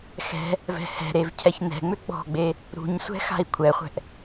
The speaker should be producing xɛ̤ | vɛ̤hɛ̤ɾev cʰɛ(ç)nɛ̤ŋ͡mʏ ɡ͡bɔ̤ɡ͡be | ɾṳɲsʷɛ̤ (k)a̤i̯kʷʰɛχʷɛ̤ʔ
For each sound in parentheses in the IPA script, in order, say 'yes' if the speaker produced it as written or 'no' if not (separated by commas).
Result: yes, no